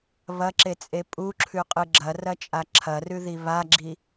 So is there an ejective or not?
yes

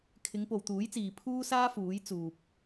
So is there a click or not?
no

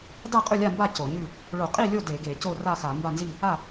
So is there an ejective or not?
yes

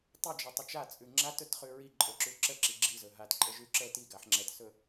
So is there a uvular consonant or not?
yes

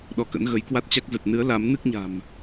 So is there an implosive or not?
yes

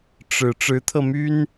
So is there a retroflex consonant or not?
yes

